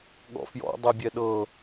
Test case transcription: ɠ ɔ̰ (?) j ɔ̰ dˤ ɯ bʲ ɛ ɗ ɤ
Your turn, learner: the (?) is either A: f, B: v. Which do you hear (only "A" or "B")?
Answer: A